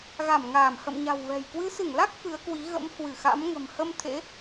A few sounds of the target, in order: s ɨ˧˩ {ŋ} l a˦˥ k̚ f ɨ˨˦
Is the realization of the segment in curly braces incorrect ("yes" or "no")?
no